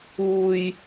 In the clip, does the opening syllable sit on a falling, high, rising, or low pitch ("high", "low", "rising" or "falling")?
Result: high